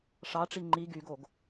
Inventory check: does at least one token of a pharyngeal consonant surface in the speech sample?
no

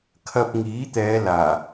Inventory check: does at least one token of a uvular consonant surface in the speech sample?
no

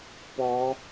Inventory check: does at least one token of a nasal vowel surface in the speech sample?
no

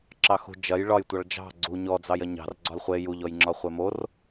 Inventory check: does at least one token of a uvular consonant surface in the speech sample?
yes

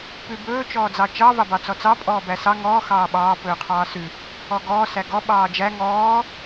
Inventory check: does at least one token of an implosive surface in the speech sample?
yes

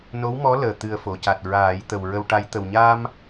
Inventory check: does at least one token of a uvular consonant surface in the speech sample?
no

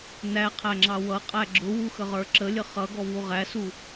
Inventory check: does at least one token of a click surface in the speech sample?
yes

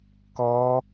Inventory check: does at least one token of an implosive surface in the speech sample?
no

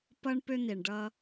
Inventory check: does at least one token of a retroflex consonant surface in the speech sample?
yes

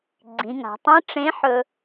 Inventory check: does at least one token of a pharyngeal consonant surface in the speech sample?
yes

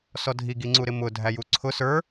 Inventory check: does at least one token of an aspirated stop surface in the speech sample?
yes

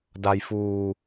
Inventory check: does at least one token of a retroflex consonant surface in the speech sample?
no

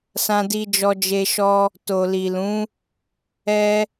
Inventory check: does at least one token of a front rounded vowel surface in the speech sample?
no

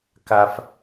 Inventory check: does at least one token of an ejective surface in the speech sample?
no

